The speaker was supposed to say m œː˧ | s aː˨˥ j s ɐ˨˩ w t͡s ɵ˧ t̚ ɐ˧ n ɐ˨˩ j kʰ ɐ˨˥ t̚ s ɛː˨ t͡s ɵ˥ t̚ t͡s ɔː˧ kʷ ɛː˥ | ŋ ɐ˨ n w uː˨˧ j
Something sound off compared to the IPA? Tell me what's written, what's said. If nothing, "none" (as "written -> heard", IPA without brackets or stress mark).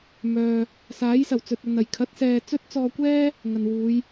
none